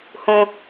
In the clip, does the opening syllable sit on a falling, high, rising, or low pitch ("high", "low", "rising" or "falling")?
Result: high